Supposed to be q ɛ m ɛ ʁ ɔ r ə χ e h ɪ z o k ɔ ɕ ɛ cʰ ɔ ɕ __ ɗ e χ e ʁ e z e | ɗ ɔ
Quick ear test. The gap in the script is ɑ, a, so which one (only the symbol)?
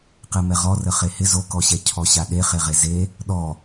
a